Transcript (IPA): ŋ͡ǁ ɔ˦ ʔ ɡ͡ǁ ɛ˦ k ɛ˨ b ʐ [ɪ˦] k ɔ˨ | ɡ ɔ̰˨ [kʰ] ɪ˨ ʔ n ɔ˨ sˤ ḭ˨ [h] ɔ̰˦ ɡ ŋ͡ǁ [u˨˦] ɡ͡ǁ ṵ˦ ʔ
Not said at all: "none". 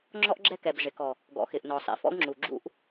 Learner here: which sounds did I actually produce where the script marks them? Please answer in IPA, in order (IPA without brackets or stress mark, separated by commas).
ɪ˨, x, f, u˨